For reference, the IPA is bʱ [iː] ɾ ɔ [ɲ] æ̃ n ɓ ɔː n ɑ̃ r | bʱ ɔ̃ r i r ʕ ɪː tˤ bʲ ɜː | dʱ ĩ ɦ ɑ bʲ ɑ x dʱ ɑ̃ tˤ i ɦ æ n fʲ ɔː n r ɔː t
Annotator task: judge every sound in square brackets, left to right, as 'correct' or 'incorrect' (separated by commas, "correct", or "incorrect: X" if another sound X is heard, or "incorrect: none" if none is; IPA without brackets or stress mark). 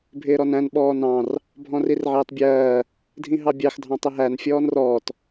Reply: incorrect: ɪː, incorrect: n